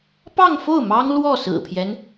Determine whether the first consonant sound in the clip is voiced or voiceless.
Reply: voiceless